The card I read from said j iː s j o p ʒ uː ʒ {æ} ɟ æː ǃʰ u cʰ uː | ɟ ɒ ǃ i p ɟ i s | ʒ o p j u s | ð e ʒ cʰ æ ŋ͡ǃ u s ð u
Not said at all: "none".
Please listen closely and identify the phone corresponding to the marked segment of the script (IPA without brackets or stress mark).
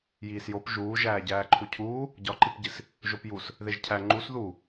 æː